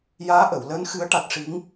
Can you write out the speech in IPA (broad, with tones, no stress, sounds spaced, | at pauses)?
j aː˧˥ ʔ ə˨˩˨ w l əː˧˥ n x ɨ˧˥ ə̯ ʈ a˨˩ t̚ ʂ i˧˥ ŋ